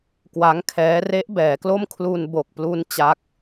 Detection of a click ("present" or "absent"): absent